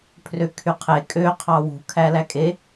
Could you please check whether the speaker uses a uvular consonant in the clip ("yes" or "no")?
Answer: yes